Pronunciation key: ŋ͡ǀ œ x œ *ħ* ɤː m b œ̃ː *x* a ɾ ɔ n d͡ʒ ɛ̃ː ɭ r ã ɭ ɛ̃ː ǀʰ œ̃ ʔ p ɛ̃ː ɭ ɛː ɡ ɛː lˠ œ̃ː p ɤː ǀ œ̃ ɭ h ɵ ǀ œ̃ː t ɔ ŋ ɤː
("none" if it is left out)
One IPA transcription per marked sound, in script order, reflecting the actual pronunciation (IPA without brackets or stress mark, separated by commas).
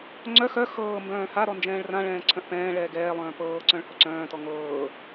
x, h